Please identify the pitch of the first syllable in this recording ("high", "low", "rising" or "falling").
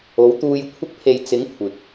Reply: rising